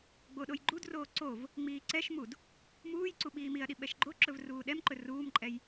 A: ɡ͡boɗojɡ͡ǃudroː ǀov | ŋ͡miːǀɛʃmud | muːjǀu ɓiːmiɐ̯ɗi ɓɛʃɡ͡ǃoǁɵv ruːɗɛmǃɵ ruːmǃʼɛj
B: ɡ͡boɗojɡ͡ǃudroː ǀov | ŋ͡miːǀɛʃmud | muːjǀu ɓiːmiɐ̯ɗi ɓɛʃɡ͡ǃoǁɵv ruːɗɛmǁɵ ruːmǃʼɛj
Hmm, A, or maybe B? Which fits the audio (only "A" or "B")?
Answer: A